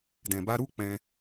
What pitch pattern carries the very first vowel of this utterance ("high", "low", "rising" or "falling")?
low